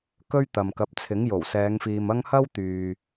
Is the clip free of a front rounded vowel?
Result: no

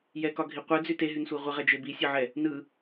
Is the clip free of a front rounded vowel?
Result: no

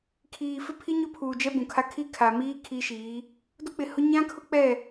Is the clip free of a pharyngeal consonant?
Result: yes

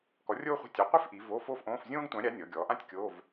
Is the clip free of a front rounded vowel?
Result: yes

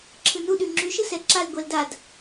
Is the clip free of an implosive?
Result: no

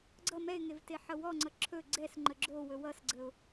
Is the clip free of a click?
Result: no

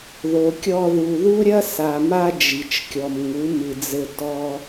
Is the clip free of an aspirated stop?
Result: yes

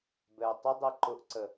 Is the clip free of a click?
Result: no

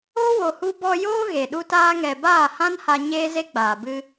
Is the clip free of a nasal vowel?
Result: no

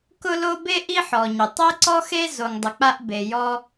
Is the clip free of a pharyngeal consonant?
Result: no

